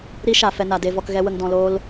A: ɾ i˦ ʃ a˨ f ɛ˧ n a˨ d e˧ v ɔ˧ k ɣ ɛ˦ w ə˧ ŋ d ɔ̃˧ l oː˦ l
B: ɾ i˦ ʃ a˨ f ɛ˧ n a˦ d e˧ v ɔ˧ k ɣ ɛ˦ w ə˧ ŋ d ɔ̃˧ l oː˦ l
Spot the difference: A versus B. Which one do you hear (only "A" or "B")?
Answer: A